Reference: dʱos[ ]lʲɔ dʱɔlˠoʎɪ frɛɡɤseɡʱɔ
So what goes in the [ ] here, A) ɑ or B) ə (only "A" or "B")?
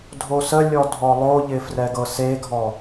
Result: B